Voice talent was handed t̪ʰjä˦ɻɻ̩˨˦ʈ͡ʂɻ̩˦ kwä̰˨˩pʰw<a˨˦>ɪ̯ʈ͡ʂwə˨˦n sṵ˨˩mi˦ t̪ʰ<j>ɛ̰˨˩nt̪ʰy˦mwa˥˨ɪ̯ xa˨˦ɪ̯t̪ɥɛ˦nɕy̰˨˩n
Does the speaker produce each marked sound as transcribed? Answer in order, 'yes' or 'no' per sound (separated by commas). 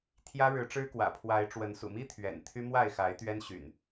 yes, no